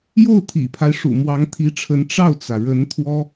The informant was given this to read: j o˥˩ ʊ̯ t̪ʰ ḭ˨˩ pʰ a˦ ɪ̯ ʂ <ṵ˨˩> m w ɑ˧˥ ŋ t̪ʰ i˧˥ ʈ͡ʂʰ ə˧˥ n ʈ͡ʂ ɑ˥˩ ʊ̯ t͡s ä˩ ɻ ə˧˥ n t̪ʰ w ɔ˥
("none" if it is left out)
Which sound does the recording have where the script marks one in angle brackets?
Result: ṵ˨˩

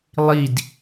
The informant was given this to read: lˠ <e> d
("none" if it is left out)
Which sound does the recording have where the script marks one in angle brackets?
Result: i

